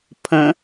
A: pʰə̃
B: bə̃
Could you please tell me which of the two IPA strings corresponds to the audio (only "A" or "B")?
A